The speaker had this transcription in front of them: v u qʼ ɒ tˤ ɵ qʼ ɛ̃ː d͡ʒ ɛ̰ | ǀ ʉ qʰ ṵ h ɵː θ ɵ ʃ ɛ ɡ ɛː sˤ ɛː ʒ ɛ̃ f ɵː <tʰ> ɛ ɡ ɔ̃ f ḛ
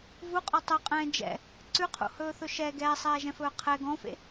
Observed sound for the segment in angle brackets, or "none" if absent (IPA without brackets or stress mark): qʰ